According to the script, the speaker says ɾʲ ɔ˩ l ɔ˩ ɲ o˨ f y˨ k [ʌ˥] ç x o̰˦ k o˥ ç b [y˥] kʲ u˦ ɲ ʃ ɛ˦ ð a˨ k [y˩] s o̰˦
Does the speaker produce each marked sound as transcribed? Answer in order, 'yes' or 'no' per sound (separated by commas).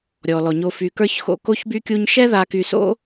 no, yes, no